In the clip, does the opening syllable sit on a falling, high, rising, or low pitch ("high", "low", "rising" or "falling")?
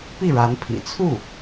falling